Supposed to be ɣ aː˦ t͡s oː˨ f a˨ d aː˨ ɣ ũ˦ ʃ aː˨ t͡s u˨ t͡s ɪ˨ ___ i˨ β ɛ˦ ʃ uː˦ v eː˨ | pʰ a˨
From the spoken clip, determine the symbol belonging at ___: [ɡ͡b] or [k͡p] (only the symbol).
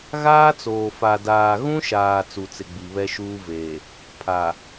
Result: ɡ͡b